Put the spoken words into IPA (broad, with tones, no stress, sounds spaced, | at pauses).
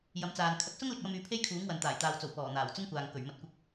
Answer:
j ɐ˨˧ m t͡s aː˨ n kʰ ɐ˨ k̚ s ʊ˥ ŋ l ɪ˧ k̚ j ɐ˧ m yː˨˧ pʰ e˥ j kʰ uː˨˥ ŋ w ɐ˨ n t̪ aː˨˩ j t̪ aː˨ w t͡s o˨˩ w p ɔː˨˩ n̪ aː˨˩ w t͡s ʊ˥ ŋ kʷ aː˨ ŋ k ɵ˨˩ ɥ m ɐ˨˥ t̚ kʷ ɪ˧ k̚